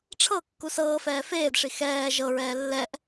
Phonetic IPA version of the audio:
ʈ͡ʂʰ ɤ kː u s ɤː f ɛː f eː d ʂ i x ɛː ʒ ɤ ɹ ɛː lː ɛ ʔ

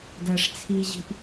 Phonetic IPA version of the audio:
d ɐː ʂ t͡sʰ i ʑ i̤ ʔ

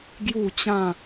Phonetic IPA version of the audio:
ɡ j u˥˧ t͡ɕ ã˥˧

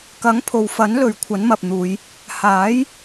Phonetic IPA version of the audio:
k ɐ˨˥ ŋ pʰ o˨ w f ɐ˨˥ n l ɵ˨˧ ɥ kʷʰ ɐ˨˥ n m ɐ˨ p̚ n̪ uː˨˧ j | h aː˨˥ j

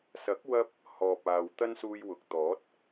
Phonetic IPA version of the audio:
s ɐ˨˥ k̚ w ɐ˥ p̚ | h ɔː˨ p̚ aː˨ w t̪ ɐ˥ n s uː˧ j w ʊ˨ k̚ t̪ ɔː˨˥ t̚

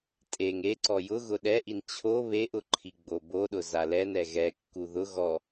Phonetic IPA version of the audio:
tʼ e ŋ e ǀ ɔ j ʊ ɣ ʊ ɗ ɛ ʔ i n t͡ɕʰ o β e ʔ ʊ ǃʰ i ɡ͡b o b o ɗ ʊ z a l ɛ n ɛ ɣ ɛ kː u ð ʊ ɣ ɔ

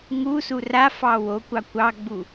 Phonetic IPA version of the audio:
ŋ u s u r a f ɑ w o kʷ ɑ kʷ ɑ ɡ͡b u

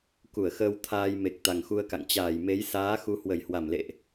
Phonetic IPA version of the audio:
k u˧˩ ə̯ x əː˧ w t̪ʰ aː˧ j m e˨˩ k̚ t̪ a˨˩ ŋ x u˧ ə̯ k a̰˧˨ ŋ t͡ɕ aː˧˩ j m e˨˦ j s aː˨˦ x u˨˦ h w ə˧˩ j h w a˧˩ m l ḛ˧˨ ʔ

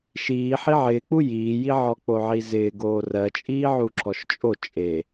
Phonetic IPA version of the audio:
ʃ iː ħ i ʕ ɪː k͡p u j iː j i ʕ ɔ k͡p o ʕ i z ɪː ɡ oː r ɜ t͡ʃʼ iː ʕ u ǁ ɔ ʃ t͡ʃʼ o t͡ʃʼ e

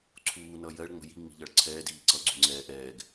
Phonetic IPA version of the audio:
ǀʰ uː n ʌ j ɜ ɭ ŋ͡m ə̤ j i ŋ͡m i̤ ʎ ʌ ɭ ǀʰ ɛː d iː ǀ ʌ ɡ͡ǀ ṳ ŋ͡ǀ ɛː ʔ ɛː ɡ

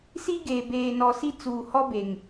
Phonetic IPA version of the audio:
s i˦ ɡ eː˨ b eː˨ n ɔ˨ s i˦ t͡s uː˨ h ɔ˦ b e˨ ŋ

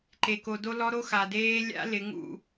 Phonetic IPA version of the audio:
ǃ e˨ k o˨ d o˦ l ɔ˦ ɾ o˦ x a˨ d eː˦ lʲ a̰˦ l ɪ˨˦ ŋ ṵ˦˨

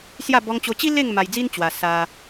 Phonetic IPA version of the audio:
s j a˥˧ b ɔ˧ ŋ t͡ɕ o˧ t͡ɕ i˦ l e˥˧ ŋ m a˧ j d͡z i˦ n t͡ɕ w a˧ s a˧

